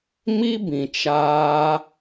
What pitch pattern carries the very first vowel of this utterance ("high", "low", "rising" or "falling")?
high